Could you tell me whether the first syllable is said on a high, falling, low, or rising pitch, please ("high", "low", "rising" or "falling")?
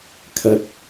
rising